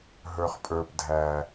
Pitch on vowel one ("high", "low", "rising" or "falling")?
low